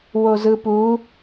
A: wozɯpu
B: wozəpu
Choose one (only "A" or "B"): A